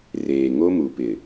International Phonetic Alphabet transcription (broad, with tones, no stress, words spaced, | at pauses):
reː˨ŋo˦mu˨pɪ˨